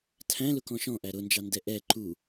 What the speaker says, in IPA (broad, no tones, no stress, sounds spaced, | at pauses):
tʰ æ̃ l ʊ k ɔ̃ ʃ ɔ̃ ʔ æ ɾ ʊ n d͡ʒ ɑ n d ɛ ʔ ɛ ǃ u